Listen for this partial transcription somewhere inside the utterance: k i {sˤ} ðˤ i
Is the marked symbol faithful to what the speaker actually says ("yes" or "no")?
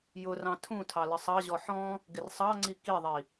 no